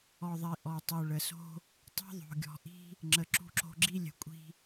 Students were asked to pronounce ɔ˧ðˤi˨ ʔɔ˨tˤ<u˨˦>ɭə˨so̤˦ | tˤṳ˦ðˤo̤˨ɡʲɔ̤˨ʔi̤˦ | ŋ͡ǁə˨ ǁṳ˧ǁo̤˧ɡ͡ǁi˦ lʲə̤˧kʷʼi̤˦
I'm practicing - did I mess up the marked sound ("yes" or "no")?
yes